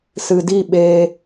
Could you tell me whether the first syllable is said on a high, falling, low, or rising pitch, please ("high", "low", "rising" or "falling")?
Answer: low